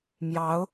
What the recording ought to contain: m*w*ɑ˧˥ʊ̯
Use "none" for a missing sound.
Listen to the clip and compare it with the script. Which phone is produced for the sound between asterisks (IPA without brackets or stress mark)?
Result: j